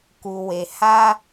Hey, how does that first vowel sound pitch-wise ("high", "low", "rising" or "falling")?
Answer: low